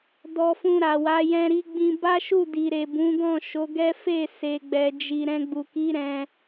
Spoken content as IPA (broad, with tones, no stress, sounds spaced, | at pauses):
d ɔ˧ f ũ˧ ɾ a˨ w a˨˦ j ɛ̃˧ ɾ i˧ ɡ͡b ĩ˧ b a˦ ʃ u˦˨ d i˨ ɾ e˨ b ũ˨˦ ɡ ɔ̃˦˨ ʃ o˨˦ ɡ ɛ˦ f e˦˨ s e˨ ɡ͡b ɛ˨ d͡ʒ i˨ ɾ ɛ̃˧ ɡ͡b u˨ k i˨˦ ɾ ɛ̃˧